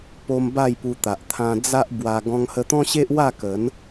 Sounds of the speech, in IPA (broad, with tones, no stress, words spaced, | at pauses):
po˧m ba˥˧jpu˧t̪a˨ʔ t̪ʰã˧ d͡za˦ʔ bwa˧ ɡɔ̃˧ŋhə˧t̪ɔ̃˦ɕe˦ʔ wa˥˧kə˨˦n